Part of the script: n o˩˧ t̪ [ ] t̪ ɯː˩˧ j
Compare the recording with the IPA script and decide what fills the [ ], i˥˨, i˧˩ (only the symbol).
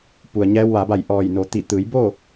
i˧˩